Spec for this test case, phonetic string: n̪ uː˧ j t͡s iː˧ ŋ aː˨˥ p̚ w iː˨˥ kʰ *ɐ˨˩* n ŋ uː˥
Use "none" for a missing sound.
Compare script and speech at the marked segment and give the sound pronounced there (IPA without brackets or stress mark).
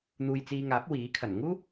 ɐ˨˩